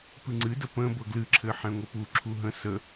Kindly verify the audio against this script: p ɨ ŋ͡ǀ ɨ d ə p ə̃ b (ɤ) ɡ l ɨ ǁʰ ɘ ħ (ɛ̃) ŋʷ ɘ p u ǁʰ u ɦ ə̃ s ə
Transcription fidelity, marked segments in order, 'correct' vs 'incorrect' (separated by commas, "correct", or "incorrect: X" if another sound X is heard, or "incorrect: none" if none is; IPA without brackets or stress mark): correct, correct